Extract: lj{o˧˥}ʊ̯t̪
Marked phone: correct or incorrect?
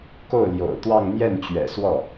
incorrect: o̰˨˩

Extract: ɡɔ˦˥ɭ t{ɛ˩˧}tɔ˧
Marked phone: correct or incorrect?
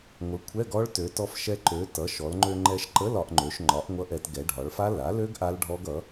incorrect: ø˩˧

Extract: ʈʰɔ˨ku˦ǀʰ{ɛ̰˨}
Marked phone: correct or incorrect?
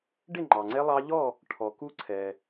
incorrect: ɛ˨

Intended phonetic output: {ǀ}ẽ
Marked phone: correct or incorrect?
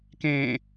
incorrect: k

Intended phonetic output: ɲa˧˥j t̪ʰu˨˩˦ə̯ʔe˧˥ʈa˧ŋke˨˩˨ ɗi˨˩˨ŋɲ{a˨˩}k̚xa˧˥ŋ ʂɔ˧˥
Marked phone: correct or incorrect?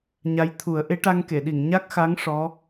incorrect: a˦˥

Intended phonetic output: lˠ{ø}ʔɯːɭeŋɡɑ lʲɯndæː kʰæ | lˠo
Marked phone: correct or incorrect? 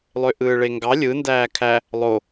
correct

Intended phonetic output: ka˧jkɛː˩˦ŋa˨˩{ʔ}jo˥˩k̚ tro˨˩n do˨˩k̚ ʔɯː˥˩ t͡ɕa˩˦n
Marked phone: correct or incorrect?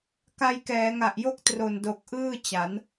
correct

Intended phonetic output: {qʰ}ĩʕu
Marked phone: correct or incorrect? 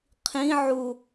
correct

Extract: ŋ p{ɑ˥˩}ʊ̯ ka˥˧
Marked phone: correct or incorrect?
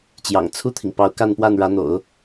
incorrect: ɑ˧˥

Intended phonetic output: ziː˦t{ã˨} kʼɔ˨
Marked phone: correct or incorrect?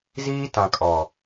correct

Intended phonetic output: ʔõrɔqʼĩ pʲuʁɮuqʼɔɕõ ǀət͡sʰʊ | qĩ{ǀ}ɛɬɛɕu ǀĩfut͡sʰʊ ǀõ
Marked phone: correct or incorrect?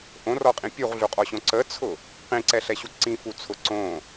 correct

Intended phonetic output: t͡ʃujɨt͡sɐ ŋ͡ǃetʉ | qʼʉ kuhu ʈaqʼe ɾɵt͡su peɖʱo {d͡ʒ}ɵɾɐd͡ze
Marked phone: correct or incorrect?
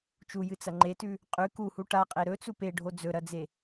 incorrect: d͡z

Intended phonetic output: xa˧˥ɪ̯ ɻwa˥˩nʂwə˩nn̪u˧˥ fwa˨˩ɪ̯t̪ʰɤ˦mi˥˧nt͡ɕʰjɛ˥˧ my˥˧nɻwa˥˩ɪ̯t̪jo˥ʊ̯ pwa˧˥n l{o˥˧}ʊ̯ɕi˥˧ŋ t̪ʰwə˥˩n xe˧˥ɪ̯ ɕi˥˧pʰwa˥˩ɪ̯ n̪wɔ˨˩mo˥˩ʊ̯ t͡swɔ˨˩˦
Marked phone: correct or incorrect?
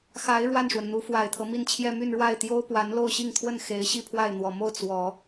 correct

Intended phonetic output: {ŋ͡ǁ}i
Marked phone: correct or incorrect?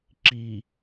incorrect: ǁ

